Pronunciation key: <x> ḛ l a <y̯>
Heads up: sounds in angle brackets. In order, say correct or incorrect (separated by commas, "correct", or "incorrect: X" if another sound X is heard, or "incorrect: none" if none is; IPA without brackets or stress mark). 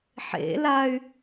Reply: incorrect: ħ, correct